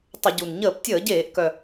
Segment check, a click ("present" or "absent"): absent